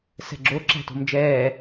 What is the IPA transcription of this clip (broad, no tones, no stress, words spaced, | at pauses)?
sɛ̤ɡ͡ǁo ǁæ̤to̤md͡ʒɛː